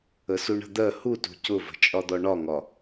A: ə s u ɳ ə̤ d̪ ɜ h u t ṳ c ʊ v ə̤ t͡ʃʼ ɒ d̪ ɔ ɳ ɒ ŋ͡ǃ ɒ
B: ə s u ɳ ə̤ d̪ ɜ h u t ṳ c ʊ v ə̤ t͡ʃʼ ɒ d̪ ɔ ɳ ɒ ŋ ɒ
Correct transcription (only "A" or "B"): B